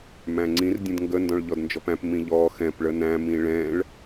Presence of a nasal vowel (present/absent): present